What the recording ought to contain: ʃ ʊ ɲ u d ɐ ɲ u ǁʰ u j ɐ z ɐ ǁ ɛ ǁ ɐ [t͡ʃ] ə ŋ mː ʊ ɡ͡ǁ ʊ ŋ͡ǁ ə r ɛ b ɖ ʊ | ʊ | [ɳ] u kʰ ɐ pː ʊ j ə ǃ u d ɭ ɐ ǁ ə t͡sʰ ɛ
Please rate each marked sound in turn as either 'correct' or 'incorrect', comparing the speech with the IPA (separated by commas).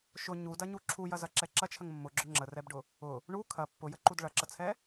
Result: incorrect, correct